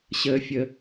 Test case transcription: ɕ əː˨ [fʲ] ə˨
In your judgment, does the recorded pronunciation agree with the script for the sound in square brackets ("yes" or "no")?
yes